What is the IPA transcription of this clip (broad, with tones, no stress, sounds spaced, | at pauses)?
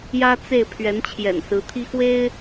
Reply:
j ä˥ t͡s e˥˩ ɪ̯ pʰ ɥ ɛ˧˥ n t͡ɕʰ j ɛ̰˨˩ n s ɹ̩˧˥ t̪ʰ i˥ x w e˥ ɪ̯